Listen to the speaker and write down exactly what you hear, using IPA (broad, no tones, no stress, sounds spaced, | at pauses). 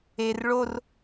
e r ɭ o r